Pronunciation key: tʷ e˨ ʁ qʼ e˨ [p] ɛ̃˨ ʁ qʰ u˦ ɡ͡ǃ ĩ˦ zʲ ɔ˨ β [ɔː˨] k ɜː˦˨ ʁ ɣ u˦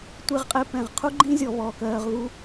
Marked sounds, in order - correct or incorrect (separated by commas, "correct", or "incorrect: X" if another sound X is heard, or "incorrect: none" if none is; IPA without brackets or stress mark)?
correct, correct